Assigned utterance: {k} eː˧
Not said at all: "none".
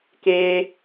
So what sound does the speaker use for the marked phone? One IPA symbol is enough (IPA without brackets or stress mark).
k